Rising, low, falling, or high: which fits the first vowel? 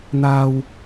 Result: low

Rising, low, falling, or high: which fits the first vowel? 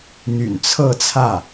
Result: low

